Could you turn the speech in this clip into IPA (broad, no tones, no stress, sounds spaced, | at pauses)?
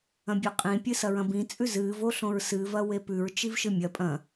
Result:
ɐ̃ bʲ ʉ qʼ ĩ pʲ ɨ s ɐ ɹ ɐ̃ b ĩ t͡sʼ ʉ z ɨː v o ɬ õ ɹ s ɨ v ɐ w e p ʉ ɹ t͡ʃ i v ʃ ɨ mʲ ɐ pʼ ɐ̃